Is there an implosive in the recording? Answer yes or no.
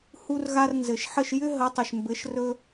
no